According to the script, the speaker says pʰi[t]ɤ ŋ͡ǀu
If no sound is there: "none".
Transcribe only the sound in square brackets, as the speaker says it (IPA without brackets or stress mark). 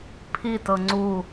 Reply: t